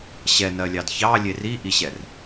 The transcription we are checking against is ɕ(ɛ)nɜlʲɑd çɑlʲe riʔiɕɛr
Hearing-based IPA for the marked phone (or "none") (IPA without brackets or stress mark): ɛ